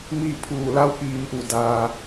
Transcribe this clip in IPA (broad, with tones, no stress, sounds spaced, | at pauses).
m iː˥˨ pʰ uː˧˩ l a˧˥ w k iː˩˧ m ʔ u˧˩ d aː˩